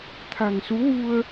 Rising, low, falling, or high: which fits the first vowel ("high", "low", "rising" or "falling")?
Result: low